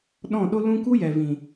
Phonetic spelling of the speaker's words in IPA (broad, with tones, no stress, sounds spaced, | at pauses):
ɗ ɔ̃˦˨ ɗ o˦ l ũ˦ k u˦ j ɛ˨ v ĩ˨